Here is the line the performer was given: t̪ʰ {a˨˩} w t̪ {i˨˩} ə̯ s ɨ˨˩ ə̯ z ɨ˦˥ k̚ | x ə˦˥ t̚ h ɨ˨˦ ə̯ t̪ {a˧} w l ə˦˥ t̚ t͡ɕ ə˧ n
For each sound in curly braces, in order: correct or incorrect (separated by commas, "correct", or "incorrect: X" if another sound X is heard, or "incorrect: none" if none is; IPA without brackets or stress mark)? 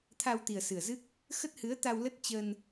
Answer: incorrect: a˧, correct, correct